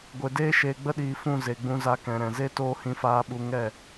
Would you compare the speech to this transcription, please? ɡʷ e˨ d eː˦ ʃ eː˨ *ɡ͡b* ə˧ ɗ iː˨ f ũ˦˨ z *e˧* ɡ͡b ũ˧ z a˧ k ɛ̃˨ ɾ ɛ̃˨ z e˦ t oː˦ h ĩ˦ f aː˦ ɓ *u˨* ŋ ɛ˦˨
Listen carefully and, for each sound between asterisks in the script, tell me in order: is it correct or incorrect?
correct, incorrect: e˨, incorrect: u˦

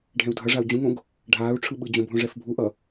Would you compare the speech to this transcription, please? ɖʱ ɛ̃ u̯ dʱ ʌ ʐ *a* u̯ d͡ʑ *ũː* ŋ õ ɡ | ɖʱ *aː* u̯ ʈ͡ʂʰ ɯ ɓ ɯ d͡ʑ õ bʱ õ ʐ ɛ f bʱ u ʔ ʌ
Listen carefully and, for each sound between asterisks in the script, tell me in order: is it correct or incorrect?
correct, incorrect: ũ, correct

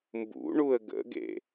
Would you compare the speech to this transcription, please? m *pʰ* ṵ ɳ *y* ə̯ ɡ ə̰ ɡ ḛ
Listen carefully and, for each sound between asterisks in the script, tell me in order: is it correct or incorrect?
incorrect: b, incorrect: u

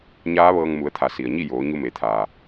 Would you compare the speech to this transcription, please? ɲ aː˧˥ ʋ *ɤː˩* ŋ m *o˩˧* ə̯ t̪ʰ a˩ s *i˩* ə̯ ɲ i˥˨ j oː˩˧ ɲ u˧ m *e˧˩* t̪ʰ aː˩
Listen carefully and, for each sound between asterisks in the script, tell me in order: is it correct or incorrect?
incorrect: ɤː˧, incorrect: u˩˧, correct, incorrect: e˩˧

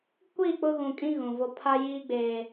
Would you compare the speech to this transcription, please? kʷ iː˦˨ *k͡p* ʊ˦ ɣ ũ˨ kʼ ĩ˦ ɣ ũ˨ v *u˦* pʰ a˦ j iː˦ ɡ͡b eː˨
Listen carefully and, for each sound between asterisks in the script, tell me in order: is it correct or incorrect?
correct, incorrect: o˦

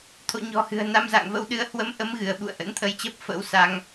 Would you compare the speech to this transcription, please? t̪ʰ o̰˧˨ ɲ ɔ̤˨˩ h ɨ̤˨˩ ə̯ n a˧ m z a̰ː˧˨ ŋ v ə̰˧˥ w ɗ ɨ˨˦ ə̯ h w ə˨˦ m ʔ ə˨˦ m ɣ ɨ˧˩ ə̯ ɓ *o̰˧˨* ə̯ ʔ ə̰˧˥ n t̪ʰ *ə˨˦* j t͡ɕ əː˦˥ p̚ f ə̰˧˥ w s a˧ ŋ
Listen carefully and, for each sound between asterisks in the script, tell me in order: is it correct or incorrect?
incorrect: ṵ˧˨, incorrect: ə˧

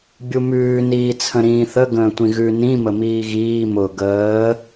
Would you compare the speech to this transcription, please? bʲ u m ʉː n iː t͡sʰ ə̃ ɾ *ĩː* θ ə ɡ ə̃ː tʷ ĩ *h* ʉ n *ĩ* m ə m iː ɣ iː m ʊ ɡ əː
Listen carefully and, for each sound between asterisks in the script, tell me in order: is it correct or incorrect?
correct, incorrect: ɣ, correct

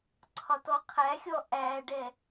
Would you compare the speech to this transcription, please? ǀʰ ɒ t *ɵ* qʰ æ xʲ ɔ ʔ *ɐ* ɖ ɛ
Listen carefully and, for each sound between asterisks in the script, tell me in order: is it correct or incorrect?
incorrect: ɔ, incorrect: æ

